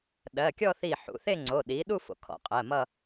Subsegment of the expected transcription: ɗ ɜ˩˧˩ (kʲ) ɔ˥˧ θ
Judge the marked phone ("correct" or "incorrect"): correct